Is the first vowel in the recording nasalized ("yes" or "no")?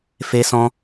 no